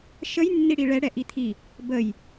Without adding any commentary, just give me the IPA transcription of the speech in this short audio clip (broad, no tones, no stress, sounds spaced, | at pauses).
ʃ ə j nː i ɽ i ɭ ɛ ɽ ɛ ʔ i t̪ʰ i | b ə j